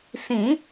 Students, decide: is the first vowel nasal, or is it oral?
nasal